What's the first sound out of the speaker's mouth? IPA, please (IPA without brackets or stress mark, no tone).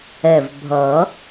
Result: ɛ